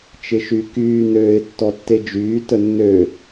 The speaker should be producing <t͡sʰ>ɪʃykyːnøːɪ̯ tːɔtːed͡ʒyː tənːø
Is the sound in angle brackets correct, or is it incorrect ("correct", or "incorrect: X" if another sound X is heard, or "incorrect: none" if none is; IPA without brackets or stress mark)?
incorrect: t͡ʃ